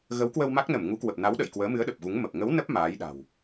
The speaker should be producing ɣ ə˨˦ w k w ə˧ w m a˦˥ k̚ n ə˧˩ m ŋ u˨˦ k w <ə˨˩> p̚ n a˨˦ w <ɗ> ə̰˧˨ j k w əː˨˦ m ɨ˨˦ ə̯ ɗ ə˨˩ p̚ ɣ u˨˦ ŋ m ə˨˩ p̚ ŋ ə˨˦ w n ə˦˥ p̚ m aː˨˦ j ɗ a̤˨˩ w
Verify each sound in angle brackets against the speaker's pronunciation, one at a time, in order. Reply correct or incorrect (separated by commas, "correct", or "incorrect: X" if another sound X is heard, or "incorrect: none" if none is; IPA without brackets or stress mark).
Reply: correct, correct